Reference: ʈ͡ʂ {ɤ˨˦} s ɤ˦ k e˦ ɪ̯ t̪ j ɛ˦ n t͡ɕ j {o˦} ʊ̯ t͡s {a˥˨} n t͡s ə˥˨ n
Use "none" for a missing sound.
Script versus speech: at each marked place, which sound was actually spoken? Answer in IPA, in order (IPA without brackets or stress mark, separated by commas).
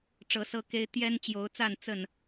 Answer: ɤ˨˦, o˨˦, a˥˨